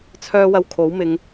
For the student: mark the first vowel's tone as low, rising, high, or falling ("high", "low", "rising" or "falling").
high